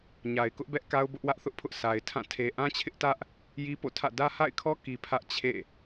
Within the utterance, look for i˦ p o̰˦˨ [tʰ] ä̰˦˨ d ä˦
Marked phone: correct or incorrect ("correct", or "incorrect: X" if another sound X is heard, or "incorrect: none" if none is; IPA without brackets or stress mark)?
correct